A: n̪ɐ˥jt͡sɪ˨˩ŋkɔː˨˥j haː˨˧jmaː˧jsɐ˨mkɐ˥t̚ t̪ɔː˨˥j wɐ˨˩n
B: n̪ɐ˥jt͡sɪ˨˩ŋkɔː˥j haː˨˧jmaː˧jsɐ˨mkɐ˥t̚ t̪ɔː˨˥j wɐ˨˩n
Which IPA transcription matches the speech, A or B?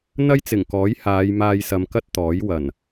A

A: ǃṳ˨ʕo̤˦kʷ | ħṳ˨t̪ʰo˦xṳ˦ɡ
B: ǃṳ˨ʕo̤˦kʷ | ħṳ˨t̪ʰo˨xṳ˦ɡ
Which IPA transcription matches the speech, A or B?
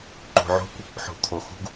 B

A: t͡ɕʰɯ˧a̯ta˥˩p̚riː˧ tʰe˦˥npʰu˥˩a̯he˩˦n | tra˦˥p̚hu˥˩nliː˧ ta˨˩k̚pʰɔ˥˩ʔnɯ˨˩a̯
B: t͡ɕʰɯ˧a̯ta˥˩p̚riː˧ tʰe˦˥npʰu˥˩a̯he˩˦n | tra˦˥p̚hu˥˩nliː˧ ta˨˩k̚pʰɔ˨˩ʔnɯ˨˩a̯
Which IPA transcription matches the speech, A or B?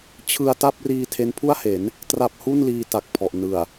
B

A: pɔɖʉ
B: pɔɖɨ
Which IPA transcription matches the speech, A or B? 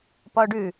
A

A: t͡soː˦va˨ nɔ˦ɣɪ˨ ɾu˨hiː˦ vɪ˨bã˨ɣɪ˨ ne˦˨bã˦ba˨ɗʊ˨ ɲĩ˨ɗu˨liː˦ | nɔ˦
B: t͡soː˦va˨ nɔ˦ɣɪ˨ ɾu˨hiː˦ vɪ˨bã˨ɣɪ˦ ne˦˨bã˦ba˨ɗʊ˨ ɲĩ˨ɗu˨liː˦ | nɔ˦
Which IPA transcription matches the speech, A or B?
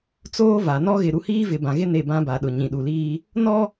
B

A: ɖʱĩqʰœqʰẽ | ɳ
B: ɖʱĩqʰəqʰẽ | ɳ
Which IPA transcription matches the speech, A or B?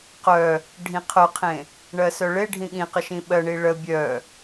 A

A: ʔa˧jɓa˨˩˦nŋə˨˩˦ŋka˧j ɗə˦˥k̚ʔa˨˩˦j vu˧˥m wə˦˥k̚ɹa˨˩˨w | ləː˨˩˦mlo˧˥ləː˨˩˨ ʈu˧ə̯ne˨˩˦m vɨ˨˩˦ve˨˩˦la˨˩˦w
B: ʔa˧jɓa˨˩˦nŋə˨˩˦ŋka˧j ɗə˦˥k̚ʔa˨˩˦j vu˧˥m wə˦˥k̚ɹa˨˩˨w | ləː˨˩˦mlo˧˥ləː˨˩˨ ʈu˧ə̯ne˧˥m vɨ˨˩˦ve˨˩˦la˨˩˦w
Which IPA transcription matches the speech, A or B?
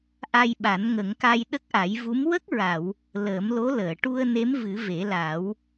B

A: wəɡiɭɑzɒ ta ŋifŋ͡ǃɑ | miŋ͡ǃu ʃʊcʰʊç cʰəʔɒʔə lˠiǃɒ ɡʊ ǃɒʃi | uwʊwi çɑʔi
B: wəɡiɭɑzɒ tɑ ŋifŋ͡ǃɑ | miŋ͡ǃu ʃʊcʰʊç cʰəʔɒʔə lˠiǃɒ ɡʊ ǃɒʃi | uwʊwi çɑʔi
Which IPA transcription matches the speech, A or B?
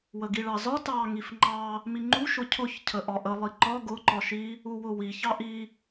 B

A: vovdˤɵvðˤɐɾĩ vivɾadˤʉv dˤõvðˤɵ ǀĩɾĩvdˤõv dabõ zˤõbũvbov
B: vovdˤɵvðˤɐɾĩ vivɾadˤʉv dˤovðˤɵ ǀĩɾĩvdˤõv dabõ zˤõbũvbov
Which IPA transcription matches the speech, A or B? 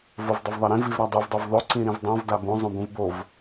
B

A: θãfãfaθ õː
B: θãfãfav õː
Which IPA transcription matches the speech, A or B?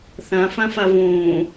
B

